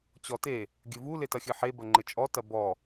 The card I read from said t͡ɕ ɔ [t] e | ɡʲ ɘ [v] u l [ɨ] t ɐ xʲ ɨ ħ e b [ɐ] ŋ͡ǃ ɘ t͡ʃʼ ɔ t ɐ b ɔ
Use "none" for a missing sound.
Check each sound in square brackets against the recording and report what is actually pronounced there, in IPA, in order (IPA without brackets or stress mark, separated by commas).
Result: t, v, e, ɐ